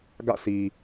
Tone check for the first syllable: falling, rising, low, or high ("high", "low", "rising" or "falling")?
falling